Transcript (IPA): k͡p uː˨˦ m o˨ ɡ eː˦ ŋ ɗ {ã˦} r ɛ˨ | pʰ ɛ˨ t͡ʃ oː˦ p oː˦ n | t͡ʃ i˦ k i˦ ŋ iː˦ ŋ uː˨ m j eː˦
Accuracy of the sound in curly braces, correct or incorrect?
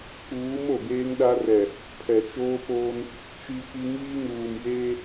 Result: incorrect